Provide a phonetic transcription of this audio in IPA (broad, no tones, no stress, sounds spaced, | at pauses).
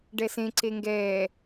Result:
ɖ ɛ s ẽ ǀ e ŋ ɡ ɛː